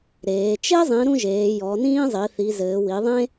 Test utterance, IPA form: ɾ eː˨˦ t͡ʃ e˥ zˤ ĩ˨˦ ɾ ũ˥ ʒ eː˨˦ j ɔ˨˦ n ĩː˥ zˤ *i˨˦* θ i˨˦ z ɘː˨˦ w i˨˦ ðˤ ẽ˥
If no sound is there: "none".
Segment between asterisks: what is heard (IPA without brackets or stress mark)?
i˨˦